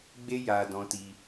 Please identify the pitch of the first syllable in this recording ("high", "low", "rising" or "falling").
high